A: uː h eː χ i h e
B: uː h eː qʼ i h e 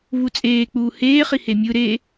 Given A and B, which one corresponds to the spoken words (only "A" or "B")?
A